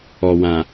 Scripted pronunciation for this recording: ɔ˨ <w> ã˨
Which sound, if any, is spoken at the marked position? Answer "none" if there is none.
w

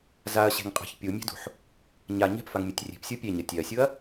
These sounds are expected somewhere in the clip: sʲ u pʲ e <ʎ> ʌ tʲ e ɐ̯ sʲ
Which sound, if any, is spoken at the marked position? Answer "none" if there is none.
ɲ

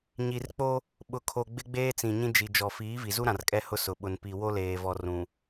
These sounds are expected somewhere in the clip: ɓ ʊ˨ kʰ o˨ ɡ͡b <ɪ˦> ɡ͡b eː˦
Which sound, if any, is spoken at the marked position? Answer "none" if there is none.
ɪ˦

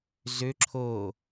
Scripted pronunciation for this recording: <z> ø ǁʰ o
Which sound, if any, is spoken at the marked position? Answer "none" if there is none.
z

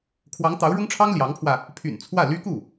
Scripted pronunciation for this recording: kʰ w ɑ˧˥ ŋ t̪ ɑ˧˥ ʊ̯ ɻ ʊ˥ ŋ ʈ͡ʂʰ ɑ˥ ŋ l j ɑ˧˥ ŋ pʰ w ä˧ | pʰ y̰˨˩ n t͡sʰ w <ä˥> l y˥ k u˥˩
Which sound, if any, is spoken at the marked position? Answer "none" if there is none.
ä˥˩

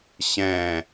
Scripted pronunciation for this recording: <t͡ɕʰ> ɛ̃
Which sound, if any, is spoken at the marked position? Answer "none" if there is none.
ɕ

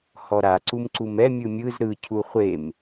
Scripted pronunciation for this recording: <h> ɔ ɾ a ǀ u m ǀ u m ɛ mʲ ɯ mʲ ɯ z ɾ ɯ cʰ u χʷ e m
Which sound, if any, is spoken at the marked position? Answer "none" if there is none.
h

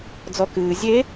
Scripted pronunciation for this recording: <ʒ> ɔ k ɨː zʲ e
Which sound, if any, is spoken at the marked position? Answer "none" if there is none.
d͡z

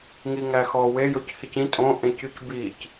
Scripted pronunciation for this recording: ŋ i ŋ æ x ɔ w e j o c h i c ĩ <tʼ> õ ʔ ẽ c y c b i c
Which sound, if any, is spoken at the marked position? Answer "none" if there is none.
tʼ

